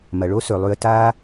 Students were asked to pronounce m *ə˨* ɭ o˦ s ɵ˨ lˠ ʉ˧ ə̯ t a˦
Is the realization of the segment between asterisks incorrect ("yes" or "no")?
yes